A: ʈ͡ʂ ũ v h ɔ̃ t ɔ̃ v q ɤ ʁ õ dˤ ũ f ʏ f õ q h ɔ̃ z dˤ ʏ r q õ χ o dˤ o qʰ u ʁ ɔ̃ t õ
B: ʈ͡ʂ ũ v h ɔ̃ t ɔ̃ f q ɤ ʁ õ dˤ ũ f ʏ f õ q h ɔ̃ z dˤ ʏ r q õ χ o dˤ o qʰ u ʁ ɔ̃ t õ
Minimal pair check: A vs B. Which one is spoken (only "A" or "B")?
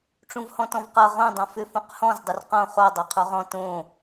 A